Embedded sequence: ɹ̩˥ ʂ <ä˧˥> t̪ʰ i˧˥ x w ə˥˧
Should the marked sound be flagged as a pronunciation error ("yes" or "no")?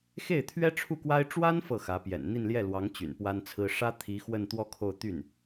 yes